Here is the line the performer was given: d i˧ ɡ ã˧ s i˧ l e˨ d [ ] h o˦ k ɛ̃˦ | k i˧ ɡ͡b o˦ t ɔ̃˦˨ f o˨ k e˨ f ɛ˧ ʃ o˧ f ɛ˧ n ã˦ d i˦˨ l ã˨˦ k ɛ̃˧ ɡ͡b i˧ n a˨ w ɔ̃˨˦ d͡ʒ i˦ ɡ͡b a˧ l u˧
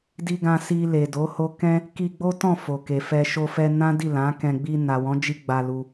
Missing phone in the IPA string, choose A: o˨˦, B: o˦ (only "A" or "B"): A